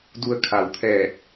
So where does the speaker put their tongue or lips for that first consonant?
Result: tongue tip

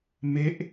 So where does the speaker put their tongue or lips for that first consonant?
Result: lips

